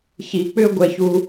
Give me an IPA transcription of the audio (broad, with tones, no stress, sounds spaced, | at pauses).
ç i˧ k͡p ʏ˥ ɡʷ ɛ˧ ç u˧